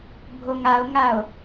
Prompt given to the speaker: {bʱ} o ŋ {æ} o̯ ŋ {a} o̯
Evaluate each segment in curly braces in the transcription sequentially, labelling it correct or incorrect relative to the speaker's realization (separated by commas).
correct, incorrect, correct